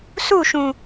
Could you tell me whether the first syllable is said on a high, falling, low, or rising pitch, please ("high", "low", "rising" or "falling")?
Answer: falling